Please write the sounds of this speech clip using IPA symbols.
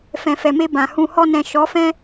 fɛ̃˨fɛ˨me˧ bã˨hũ˧ hɔ˧nɛ̃˨ ʃɔ˨˦fɛ̃˦

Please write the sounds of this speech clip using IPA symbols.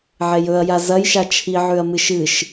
ʕejɵɐ̯ja zɐjʃa t͡ʃʰiʕʉɐ̯ mɨʃɨʃ

